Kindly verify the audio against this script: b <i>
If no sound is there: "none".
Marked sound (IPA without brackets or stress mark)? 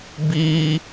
i